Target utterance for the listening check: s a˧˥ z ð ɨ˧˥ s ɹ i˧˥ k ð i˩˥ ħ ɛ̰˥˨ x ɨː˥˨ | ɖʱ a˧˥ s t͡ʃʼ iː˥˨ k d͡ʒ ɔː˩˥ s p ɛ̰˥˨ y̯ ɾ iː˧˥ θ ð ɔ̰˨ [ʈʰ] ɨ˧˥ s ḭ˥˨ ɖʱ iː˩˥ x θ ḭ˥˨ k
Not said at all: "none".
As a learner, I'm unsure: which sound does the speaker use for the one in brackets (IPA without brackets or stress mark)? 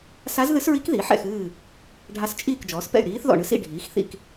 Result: ɳ